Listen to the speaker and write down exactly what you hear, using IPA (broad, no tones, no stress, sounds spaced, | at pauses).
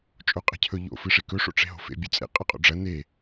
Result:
t͡ʃʼ o qʼ e̤ cʰ ɵ ʎ o̰ f ɨ ʂ e k ɵ ʂ o̰ ʈ͡ʂ e̤ ɦ o̤ f ḛ bʲ ʉ t͡sʼ ḛ qʼ ɐ qʼ o̰ ɖ͡ʐ ɐ n e